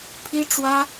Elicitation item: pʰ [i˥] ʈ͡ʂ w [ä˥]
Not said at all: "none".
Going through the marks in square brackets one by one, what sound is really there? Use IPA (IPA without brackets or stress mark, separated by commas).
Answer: i˥, ä˥